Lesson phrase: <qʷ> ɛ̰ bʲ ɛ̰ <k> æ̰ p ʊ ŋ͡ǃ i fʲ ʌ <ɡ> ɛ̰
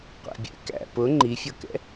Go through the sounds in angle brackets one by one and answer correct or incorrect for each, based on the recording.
correct, correct, incorrect

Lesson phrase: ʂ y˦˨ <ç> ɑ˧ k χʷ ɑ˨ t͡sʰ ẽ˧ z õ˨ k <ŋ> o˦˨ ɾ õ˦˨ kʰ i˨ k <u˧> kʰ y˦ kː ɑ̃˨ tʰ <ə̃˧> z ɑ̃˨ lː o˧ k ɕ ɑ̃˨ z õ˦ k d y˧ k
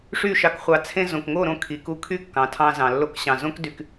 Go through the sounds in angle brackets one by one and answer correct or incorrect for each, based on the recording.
incorrect, correct, correct, incorrect

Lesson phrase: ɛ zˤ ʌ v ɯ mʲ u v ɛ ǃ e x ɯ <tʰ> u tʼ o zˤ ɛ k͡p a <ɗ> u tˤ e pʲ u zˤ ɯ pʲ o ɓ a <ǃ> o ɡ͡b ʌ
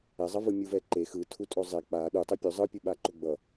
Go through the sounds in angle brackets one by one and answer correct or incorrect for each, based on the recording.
correct, correct, correct

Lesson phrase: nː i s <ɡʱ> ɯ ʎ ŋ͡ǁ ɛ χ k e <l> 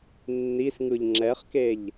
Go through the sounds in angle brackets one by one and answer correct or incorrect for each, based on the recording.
incorrect, incorrect

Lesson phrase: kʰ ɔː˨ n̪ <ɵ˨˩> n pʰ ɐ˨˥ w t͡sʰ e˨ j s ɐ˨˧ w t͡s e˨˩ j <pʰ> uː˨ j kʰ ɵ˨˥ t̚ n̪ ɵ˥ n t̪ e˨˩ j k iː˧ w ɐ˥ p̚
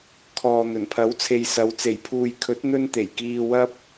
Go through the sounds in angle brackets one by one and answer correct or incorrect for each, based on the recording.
correct, correct

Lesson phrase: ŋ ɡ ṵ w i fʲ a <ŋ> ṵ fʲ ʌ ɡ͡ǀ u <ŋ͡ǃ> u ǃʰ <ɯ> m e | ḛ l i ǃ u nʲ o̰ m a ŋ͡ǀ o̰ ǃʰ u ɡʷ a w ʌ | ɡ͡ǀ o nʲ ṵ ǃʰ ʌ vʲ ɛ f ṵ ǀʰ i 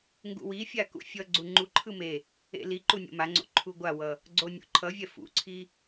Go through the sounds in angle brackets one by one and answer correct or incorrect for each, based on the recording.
incorrect, correct, correct

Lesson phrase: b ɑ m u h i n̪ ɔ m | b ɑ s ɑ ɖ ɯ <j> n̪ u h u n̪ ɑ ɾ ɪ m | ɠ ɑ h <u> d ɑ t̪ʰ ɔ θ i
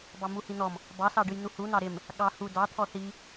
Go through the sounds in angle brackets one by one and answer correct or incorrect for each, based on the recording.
correct, correct

